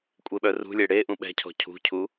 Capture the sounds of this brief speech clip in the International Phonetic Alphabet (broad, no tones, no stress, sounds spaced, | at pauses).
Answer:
kʷʼ e ɓ œ r ṳ lʲ e ɽ e ʔ ũ ɓ ɛ̤ cʰ ɔ̤ cʰ ṳ cʰ u